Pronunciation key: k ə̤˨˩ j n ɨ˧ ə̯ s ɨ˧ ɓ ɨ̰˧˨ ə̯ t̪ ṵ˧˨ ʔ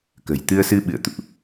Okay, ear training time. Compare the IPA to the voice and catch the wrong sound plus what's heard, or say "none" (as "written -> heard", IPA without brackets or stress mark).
n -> t̪